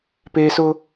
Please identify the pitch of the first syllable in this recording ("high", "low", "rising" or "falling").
high